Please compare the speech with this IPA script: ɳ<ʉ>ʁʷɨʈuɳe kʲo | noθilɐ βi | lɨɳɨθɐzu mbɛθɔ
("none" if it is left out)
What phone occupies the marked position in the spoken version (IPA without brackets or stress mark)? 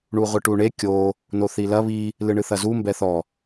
u